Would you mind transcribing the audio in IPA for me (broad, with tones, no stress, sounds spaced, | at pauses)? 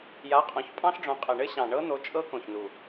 j a˨˦ qʼ õ˨˦ ç pʼ ɑ̃˦˥ ɬ ɖ͡ʐ õ˨˦ qʼ ɘ˨˩ ɳ ɘ˦˥ ɕ ɑ̃˨˩ ɳ ɤ˦˥ n̪ o˨˦ t͡ʃʼ ɤ˦˥ k õ˨˩ ç n u˨˩